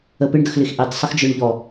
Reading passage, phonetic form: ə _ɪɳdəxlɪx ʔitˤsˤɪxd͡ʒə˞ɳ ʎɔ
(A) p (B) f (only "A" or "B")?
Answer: A